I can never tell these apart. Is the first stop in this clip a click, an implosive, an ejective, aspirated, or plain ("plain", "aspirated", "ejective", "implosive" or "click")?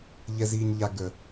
plain